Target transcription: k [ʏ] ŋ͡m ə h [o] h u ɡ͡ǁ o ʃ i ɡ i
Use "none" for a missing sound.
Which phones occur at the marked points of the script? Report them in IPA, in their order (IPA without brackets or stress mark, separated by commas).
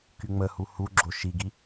y, u